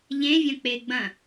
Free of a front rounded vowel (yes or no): yes